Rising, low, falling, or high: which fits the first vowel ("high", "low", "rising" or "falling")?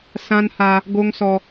high